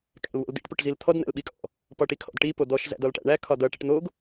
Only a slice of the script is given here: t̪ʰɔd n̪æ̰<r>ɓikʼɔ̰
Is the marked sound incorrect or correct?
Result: incorrect